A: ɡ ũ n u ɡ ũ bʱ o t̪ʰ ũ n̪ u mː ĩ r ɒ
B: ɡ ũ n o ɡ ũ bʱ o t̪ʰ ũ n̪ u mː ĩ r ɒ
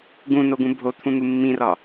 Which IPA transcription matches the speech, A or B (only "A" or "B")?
B